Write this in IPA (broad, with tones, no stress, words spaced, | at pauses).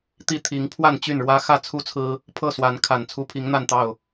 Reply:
t̪i˥˨t̪ʰi˨˦ŋ pʰwa˥˨nt͡ɕy˥˨nɻwä˦ xä˥˨t͡sʰu˦t͡sʰɹ̩˦ | pʰɤ˥˨swa˨˦n kʰa˨˩n t͡sʰu˦pʰi˨˦ŋn̪a˥˨nt̪ɑ˥˨ʊ̯